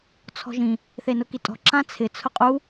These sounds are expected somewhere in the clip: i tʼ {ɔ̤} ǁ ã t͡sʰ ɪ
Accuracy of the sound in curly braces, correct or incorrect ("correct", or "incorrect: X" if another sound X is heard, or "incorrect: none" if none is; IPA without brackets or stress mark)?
correct